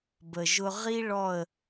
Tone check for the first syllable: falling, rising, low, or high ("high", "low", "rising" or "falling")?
low